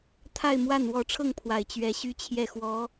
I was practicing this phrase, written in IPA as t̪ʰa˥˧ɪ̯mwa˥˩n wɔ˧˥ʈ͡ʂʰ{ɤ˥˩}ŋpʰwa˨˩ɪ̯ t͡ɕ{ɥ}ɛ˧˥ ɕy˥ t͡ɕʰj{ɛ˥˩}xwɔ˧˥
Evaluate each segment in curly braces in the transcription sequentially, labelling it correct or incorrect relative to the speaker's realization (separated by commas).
correct, correct, correct